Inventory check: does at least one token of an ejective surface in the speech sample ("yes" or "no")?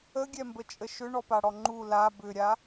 yes